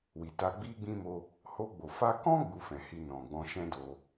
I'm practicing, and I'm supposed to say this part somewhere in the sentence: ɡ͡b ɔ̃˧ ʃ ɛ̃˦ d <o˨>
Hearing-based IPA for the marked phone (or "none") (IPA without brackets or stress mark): o˧